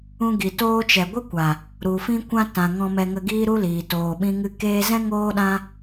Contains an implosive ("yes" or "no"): yes